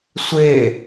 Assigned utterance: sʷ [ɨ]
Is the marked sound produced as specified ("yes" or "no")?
no